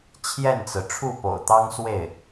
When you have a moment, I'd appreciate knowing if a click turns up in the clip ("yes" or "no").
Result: no